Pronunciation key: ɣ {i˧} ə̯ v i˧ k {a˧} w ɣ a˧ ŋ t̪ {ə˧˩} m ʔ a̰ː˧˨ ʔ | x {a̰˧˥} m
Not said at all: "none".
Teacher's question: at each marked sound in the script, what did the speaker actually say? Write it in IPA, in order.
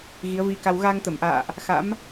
i˨˦, a˧, ə˧˩, a̰˧˥

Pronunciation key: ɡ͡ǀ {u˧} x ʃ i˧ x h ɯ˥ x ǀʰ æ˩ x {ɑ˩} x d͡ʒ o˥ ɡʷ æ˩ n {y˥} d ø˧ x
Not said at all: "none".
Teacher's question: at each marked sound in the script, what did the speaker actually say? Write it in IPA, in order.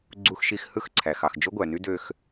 u˧, ɑ˩, y˥

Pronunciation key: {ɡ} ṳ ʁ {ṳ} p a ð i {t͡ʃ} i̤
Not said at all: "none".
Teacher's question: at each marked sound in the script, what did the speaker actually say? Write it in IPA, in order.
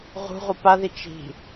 ʁ, u, t͡ʃ

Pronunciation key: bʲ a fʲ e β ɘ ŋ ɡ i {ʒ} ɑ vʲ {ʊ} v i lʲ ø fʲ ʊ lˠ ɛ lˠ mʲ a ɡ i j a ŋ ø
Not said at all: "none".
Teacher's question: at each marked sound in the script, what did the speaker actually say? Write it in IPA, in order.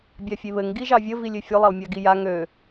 ʒ, ə

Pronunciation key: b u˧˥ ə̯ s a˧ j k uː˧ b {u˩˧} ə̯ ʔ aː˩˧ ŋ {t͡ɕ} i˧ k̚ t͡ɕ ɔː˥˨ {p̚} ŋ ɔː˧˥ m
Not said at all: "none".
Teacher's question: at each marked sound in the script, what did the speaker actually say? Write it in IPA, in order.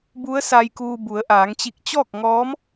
u˩˧, t͡ɕ, k̚

